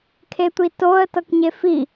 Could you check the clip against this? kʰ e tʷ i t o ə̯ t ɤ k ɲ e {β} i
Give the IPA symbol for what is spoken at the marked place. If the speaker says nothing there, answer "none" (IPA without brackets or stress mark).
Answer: f